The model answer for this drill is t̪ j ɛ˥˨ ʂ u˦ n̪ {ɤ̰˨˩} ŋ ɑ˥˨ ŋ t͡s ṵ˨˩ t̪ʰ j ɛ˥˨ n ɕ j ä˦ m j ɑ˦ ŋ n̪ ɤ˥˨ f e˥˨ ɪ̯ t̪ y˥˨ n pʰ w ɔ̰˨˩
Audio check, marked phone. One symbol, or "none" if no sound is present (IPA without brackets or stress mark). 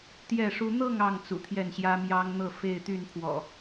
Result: ɤ˥˨